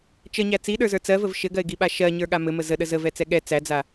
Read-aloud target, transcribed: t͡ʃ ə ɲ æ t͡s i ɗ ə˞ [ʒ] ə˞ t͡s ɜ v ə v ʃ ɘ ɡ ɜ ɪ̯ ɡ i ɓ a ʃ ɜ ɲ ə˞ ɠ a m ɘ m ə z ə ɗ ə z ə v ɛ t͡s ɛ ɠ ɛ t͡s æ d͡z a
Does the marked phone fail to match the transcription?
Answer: yes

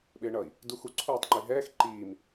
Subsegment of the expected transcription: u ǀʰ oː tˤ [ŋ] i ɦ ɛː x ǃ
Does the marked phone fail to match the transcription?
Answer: yes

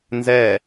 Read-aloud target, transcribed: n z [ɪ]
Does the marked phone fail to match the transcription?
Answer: yes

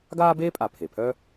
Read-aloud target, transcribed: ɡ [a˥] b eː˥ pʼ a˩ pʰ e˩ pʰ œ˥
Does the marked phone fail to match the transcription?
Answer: yes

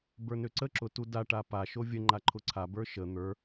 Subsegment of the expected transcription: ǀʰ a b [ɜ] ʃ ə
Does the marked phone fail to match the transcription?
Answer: yes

